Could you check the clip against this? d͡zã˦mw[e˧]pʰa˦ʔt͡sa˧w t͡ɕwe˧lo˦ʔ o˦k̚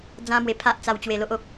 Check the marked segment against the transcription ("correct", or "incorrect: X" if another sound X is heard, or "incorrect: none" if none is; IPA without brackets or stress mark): correct